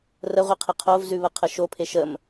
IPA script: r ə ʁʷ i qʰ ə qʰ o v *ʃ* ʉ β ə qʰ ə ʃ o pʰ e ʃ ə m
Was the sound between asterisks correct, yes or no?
no